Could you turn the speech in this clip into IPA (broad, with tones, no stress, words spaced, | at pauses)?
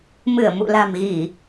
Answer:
mɨ˧˩ə̯mṵ˧˨ la̤˨˩mɣi˧˩˨